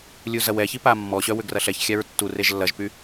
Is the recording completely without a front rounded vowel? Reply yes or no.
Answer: no